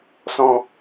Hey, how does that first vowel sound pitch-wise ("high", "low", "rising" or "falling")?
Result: high